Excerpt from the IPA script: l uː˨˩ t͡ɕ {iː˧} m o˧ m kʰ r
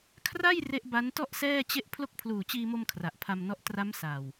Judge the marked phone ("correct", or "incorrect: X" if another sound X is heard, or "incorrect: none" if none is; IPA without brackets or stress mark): correct